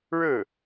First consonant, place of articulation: retroflex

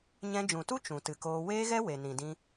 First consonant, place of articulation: palatal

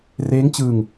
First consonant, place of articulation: alveolar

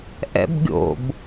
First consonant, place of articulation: glottal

